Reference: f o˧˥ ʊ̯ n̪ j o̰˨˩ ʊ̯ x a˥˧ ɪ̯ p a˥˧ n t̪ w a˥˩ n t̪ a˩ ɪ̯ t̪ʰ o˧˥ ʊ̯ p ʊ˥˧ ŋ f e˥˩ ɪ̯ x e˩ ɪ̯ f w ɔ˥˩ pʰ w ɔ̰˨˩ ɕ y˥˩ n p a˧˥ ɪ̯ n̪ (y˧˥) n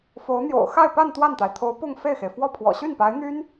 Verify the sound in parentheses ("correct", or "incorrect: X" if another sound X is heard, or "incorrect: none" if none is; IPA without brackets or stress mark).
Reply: incorrect: y˥